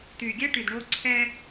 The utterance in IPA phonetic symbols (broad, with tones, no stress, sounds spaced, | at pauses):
t̪ yː˨ ɡʲ ɛ˦ ʈ y˨ d ɳ oː˦ ǀʰ ɛː˦